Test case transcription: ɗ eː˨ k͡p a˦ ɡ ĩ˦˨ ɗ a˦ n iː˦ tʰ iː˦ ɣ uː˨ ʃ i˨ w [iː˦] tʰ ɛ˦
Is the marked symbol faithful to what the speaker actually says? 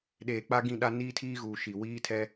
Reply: yes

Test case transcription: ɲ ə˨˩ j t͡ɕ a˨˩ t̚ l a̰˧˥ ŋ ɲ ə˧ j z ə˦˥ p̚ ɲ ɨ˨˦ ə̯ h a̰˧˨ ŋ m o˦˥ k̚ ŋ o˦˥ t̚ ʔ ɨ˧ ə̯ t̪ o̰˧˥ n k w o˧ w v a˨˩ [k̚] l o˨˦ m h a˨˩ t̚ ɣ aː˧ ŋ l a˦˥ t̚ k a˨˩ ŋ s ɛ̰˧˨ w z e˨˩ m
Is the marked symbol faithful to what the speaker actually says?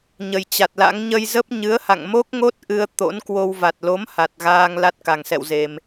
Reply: no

